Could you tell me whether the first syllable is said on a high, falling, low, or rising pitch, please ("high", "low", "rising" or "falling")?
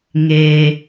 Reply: low